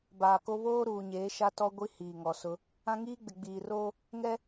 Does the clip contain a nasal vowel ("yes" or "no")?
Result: yes